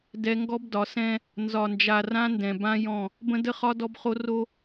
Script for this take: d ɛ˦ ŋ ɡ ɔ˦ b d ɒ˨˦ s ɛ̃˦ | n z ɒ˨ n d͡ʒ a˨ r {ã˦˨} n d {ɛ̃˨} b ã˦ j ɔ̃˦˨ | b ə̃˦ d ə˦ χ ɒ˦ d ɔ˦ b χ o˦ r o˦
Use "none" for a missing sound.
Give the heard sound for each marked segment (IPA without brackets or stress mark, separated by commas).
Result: ã˦, ɛ̃˨